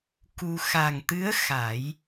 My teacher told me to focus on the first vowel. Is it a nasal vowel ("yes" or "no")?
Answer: no